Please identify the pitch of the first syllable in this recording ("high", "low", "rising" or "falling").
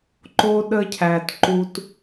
high